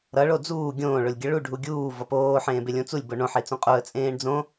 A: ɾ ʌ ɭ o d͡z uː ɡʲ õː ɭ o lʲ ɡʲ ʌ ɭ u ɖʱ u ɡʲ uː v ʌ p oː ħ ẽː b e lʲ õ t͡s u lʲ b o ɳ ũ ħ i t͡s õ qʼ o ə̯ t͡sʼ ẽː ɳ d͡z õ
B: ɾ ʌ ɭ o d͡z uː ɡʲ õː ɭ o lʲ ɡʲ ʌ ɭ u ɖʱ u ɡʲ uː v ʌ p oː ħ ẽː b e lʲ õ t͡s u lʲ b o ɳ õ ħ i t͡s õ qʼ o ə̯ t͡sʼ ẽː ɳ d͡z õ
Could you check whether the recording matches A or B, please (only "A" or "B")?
B